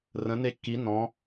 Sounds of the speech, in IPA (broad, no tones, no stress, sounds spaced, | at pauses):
r ə̃ n e kː i n ɔ̃